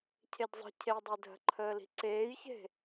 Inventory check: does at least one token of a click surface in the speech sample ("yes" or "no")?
yes